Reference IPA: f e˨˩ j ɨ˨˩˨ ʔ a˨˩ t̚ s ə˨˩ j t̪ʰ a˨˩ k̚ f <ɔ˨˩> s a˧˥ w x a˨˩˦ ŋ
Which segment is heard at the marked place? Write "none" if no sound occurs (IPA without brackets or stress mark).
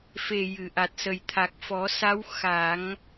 ɔ˨˩˦